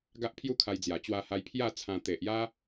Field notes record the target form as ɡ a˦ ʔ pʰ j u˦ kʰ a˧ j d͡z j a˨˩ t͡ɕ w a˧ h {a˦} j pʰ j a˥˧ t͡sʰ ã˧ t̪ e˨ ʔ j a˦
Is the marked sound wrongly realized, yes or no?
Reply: yes